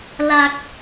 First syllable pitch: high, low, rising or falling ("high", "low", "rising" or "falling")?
low